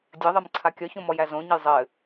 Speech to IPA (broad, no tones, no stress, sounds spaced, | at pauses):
dʲ ɘ ðˤ ɘ m ǀʰ a kʲ ɒ ç õ m ɔ j æ z õ ɲ ɘ j zˤ ɘ